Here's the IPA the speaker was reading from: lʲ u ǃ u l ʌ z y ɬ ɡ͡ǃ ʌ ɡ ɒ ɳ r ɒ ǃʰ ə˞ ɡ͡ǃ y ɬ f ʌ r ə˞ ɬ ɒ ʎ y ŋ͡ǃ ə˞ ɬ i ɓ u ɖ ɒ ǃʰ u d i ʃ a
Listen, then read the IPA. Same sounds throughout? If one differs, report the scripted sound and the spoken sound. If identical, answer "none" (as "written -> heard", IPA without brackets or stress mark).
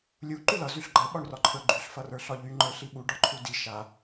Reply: ɡ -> ɓ